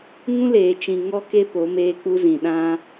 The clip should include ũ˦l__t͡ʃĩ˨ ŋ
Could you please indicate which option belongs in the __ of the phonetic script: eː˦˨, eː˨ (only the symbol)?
eː˨